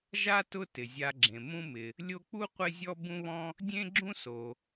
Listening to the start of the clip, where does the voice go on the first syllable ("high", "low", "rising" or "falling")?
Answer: high